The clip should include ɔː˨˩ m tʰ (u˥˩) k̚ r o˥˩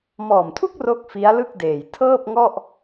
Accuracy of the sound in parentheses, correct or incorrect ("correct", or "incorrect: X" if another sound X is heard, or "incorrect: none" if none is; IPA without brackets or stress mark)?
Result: correct